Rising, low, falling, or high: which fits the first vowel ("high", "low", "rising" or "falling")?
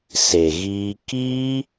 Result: low